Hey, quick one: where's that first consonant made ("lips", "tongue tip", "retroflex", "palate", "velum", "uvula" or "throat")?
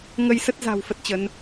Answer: velum